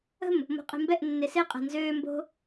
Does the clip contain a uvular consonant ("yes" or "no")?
yes